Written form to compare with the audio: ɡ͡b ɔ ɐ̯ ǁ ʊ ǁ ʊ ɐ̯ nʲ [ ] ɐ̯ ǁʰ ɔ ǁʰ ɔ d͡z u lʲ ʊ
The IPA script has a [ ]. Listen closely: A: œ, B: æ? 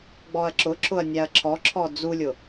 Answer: B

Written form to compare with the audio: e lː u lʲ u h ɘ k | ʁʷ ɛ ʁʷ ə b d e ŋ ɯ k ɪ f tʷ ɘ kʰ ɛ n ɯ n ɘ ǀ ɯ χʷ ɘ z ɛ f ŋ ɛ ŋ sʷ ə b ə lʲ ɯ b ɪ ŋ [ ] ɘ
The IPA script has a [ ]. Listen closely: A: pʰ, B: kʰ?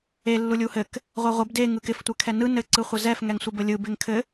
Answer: B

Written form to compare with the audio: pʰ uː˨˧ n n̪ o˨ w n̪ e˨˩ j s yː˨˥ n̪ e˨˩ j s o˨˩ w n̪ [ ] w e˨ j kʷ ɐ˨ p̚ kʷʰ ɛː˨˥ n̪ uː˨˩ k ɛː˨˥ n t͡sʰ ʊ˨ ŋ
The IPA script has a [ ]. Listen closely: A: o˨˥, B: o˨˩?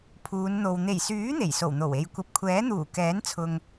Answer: B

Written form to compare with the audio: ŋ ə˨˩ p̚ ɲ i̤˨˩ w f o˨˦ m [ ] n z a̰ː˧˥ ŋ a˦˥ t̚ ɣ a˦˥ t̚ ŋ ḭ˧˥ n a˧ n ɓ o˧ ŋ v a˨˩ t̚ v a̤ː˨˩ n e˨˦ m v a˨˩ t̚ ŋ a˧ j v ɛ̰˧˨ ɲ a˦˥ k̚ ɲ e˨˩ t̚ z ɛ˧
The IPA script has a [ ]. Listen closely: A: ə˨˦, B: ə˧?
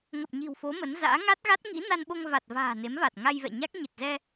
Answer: A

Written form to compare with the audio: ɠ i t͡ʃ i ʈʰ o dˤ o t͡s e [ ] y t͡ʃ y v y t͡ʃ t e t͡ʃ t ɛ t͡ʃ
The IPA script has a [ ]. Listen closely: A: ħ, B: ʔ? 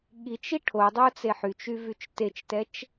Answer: A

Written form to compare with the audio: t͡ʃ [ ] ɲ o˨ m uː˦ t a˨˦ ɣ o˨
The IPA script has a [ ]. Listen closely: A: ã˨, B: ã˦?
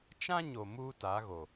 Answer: B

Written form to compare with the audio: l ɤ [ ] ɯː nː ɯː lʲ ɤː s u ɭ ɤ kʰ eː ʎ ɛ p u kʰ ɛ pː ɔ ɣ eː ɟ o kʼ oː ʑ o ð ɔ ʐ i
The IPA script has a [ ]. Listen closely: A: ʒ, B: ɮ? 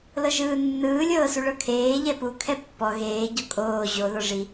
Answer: A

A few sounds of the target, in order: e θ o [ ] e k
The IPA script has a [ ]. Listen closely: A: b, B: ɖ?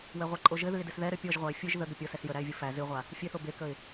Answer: A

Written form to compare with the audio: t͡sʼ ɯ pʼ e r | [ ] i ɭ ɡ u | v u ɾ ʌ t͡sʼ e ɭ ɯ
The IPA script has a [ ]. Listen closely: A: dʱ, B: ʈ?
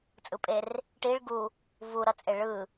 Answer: B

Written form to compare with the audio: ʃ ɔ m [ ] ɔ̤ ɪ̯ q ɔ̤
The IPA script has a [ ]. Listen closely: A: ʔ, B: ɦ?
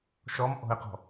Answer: A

